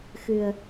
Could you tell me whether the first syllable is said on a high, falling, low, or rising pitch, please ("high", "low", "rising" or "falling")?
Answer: low